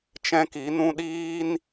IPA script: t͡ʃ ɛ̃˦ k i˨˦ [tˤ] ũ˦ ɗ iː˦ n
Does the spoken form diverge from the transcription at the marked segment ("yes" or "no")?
yes